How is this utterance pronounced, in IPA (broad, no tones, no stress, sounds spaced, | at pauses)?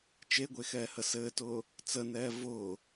t͡ʃ e ɡʷ e x ɛː h ə s ɘː t ʊː | t͡s ə n ɛː v ʊː